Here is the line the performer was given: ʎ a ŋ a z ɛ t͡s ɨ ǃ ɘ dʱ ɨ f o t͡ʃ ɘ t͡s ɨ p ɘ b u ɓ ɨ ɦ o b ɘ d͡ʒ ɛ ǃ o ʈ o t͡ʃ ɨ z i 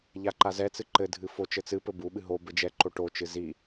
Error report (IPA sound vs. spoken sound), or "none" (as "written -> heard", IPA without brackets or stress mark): ŋ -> ǃ